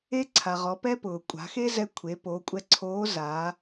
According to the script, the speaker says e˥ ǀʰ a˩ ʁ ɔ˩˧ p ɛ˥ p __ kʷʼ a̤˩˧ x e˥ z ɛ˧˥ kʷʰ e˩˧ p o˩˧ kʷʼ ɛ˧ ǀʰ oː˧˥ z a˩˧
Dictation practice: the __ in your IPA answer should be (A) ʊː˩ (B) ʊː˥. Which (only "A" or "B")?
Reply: A